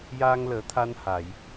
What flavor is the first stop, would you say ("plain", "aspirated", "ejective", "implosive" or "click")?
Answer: aspirated